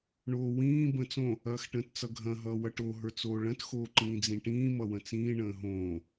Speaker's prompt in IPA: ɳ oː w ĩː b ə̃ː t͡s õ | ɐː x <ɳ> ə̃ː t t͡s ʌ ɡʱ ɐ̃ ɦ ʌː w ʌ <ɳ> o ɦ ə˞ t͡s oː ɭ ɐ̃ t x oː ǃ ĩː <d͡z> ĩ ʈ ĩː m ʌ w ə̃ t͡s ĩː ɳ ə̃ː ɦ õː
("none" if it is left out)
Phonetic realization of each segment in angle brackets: ʈ, ʈ, d͡z

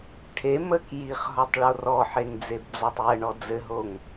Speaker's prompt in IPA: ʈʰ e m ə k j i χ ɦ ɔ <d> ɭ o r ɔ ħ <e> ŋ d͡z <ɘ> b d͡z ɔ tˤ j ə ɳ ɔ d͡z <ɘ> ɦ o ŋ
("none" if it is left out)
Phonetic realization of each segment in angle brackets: tˤ, e, e, ɘ

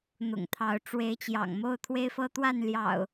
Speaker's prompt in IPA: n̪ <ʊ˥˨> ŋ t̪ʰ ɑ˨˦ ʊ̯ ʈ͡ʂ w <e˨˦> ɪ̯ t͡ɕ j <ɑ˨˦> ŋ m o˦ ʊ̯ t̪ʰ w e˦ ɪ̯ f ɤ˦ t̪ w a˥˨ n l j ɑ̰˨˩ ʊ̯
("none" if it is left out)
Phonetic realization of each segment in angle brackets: ʊ̰˨˩, e˨˦, ɑ̰˨˩

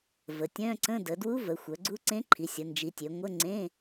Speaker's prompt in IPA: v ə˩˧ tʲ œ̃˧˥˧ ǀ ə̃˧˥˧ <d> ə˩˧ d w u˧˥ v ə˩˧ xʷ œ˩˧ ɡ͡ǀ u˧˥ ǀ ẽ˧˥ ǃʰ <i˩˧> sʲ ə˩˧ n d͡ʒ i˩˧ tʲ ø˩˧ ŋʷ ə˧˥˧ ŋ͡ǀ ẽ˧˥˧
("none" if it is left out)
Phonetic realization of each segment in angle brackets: d, i˩˧

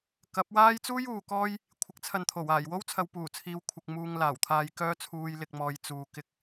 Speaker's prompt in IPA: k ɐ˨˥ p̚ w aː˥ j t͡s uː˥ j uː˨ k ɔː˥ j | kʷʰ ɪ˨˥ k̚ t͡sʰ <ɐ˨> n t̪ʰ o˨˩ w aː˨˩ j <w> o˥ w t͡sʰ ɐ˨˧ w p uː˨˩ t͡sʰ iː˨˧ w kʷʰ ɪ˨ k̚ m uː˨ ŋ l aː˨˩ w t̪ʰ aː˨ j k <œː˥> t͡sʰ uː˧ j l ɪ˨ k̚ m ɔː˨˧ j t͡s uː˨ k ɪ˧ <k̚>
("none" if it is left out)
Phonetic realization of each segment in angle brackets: ɐ˨, w, œː˥, k̚

